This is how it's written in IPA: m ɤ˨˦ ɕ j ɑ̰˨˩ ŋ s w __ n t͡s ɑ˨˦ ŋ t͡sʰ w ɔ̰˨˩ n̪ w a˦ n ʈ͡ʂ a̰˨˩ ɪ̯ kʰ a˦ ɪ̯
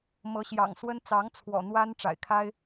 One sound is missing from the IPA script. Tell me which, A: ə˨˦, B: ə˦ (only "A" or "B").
B